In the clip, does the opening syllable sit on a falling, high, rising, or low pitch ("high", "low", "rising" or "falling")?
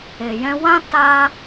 low